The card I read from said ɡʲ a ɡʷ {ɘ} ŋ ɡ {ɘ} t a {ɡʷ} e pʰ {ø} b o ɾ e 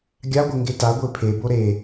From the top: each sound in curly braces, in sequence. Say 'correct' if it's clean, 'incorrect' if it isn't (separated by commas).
correct, incorrect, correct, incorrect